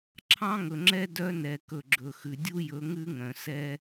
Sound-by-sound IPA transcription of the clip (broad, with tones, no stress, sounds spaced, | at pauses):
ǁʰ ɑ̃˦ ŋ ɵ˨ ŋ͡ǁ ɛ˦ d œ˦ n ɛ˨ k ɵ˨ ɡ͡ǁ ɵ˨ x ʉ˨ dʲ u˦ j ɵ˨˦ ŋ ʉ˦ ŋ œ̃˨ s ɛ˦